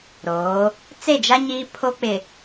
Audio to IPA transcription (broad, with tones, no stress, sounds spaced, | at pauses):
ɾ oː˨˦ | t͡s e˦˨ d͡ʒ a˦ ɲ iː˦ pʰ o˦ k͡p ɪ˨